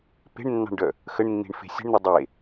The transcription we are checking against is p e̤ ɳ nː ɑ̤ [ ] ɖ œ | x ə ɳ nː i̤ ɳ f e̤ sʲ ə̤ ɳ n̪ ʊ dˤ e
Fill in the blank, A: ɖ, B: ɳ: B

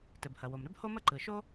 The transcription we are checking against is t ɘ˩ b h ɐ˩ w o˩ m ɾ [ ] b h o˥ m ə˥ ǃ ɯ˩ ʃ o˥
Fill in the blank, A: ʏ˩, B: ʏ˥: B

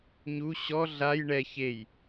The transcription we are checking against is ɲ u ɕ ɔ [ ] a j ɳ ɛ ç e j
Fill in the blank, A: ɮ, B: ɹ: A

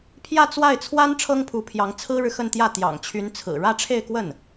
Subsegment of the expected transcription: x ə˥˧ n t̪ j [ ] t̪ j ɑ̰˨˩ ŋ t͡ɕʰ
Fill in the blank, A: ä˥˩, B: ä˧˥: A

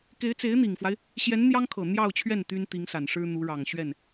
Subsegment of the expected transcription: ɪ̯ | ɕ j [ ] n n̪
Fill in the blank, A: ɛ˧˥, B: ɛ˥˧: A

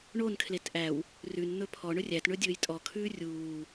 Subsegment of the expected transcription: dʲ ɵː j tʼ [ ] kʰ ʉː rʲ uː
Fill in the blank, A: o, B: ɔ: B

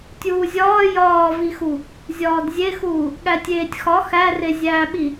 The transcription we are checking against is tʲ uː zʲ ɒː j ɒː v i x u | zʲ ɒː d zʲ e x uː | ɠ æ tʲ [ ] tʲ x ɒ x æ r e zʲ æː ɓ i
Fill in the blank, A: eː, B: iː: A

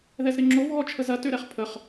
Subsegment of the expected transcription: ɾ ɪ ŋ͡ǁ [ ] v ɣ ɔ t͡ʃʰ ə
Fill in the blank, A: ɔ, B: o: B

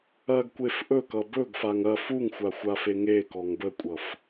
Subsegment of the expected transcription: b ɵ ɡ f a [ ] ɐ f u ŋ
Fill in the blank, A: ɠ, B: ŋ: B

